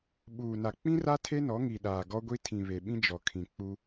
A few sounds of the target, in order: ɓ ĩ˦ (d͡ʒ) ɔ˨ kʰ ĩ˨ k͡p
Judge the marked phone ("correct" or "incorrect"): correct